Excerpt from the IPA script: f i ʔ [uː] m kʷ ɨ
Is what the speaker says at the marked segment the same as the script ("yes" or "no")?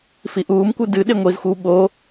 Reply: yes